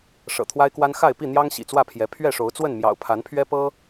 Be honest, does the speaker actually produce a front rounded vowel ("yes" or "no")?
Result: no